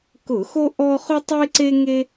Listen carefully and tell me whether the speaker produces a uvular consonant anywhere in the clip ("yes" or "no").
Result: yes